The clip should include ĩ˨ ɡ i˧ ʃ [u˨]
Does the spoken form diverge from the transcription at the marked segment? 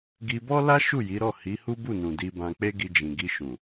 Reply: yes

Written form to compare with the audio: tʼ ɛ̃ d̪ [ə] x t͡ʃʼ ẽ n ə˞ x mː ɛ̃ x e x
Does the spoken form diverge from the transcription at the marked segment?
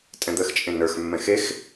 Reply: no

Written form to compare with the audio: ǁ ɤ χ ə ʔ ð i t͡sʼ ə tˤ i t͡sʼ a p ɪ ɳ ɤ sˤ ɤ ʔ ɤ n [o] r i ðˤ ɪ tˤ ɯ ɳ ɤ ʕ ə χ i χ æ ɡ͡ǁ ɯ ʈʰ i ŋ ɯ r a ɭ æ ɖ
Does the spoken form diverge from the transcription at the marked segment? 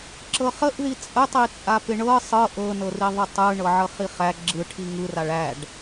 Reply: yes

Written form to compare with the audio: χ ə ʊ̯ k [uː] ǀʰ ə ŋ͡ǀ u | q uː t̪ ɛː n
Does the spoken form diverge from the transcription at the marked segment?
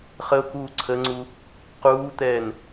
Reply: no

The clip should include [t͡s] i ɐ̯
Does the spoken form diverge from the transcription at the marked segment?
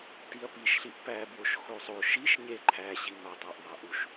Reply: yes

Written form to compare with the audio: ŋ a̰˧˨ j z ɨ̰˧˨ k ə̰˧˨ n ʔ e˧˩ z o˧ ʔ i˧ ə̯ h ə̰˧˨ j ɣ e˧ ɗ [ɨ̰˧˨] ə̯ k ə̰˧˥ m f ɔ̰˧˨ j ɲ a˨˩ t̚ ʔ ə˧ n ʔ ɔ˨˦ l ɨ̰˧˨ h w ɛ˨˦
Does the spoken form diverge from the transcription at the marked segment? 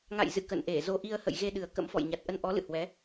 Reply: yes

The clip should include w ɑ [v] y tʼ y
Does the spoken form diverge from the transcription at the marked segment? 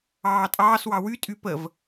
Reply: yes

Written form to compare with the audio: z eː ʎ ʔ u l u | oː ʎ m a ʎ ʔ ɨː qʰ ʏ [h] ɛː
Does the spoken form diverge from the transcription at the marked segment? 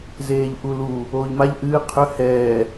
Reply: no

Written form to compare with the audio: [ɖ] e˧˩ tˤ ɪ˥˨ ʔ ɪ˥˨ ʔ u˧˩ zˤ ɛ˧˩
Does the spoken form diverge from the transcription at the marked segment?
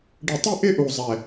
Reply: no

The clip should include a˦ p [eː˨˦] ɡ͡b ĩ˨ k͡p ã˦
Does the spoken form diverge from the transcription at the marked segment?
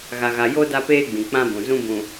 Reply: yes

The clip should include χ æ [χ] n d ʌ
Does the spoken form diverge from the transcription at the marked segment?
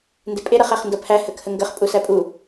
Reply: no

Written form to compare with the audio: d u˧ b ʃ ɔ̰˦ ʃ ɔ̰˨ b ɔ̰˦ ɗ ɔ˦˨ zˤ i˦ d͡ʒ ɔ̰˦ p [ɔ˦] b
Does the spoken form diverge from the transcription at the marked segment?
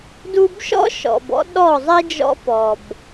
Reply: yes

